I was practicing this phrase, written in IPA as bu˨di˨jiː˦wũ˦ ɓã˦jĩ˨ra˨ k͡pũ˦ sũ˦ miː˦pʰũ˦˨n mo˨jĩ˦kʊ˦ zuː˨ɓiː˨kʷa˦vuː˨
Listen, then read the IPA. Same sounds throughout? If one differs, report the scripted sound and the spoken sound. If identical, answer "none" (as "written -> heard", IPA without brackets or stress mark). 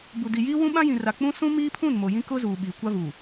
none